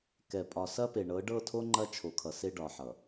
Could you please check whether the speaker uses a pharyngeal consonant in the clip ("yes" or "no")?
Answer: yes